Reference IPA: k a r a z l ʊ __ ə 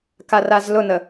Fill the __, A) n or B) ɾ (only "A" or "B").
A